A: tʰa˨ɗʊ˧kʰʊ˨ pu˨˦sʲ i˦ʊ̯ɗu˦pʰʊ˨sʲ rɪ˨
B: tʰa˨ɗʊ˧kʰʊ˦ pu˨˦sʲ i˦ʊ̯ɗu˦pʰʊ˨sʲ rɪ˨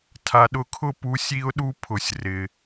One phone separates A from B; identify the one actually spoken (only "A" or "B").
B